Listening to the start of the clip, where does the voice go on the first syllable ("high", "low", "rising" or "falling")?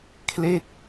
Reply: falling